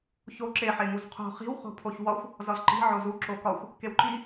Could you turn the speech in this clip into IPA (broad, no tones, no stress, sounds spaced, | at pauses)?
ç o ǁ e ħ e ŋ u z qʰ o̤ χ i̤ w χ o̤ pʰ o ç w ɒ xʷ | z ɒ z ǃ i̤ ʕ o z u ǁ o k ɒ xʷ | k e w ǃ i